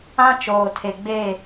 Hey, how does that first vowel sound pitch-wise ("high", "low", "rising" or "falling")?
high